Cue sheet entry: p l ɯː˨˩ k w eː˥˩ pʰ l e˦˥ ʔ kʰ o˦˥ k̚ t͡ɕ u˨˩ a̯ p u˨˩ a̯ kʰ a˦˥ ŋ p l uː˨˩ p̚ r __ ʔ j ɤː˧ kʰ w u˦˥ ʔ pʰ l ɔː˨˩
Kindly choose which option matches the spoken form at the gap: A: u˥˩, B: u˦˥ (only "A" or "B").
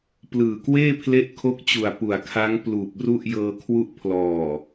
A